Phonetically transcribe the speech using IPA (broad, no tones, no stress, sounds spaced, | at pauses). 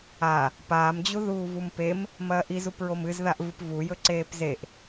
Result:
a | p aː m d͡ʑ u ð uː v u m p e m | m ɐː ʔ i z u p ɹ o m ɨ z ð a ʔ v ɨ p v u j ɵ ǀ eː p z e ʔ